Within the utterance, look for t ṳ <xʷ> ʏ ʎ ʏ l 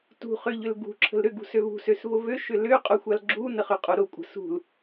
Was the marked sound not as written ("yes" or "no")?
yes